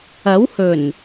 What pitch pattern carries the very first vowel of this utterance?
rising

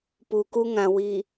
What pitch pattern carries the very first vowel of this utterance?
low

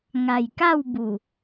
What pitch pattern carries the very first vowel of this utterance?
low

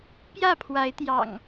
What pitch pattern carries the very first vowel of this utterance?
falling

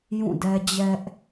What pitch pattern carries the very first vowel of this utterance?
falling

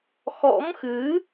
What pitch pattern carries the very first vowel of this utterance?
rising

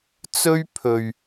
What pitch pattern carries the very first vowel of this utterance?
high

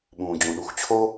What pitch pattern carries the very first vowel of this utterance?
low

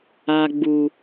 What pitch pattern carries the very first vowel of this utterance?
low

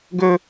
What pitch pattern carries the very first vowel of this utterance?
high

